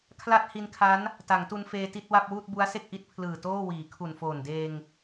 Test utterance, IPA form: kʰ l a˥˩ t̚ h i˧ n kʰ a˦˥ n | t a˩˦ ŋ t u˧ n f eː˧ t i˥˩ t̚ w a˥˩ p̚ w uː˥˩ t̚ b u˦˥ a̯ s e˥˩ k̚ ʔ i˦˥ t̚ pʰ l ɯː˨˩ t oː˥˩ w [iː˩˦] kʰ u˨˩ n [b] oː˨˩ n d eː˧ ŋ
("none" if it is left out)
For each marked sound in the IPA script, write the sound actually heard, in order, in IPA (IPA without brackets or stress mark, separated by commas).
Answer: iː˩˦, f